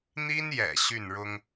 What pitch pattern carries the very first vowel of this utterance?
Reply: high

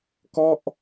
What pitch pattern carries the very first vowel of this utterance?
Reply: falling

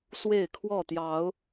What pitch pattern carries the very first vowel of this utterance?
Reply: falling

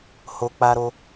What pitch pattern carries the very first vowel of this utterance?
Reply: low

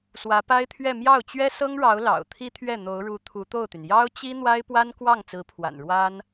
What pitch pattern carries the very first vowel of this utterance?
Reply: rising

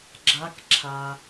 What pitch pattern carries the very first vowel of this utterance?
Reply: rising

